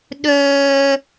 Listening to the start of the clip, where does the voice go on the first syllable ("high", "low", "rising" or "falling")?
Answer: high